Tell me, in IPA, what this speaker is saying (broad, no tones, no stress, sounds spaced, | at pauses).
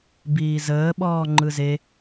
b iː z əː ɓ ɔː ŋ͡ǃ ɯ z e